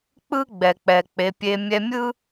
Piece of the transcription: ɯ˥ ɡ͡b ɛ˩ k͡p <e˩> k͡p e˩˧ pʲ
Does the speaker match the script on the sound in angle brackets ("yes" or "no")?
no